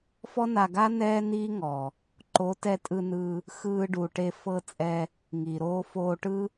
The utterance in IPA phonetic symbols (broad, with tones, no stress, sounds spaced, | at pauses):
f ɔ˦ n a˧ ɡ a˦ n ɛː˦ n iː˦ ŋ ɔ˨ | ǃ o˨˦ t ɛ˧ tʼ ɯ˧ n ɯ˧ | x ɯː˧ ɖ u˨ ʈ e˧ f ɤ˦ t͡sʼ ɛ˧ | ŋ i˨ ɾ oː˧ f oː˧ ʈ ɯ˦